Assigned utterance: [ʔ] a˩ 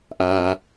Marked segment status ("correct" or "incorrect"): correct